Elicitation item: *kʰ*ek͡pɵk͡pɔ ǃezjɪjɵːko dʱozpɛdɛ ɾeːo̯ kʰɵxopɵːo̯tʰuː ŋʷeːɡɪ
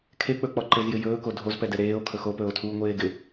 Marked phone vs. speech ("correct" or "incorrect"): correct